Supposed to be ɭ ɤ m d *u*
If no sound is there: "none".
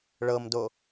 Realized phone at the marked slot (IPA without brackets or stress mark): o